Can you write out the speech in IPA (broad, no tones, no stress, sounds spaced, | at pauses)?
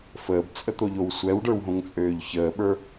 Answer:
f əː b t͡sʼ ə t̪ o ʎ o w sʷ ɛ w ɖ ə˞ w ɦ õ ŋ t͡sʼ øː ʎ ç əː ɓ ə˞